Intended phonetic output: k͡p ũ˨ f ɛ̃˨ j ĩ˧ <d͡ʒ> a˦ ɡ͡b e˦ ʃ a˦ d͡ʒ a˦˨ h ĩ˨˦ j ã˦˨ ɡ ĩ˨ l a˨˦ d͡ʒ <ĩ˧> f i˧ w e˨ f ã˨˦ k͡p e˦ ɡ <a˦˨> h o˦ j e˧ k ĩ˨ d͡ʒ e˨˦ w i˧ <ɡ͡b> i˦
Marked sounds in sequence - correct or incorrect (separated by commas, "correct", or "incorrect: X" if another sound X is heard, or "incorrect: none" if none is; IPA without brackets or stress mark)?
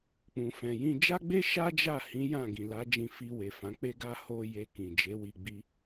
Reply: correct, correct, incorrect: a˦, correct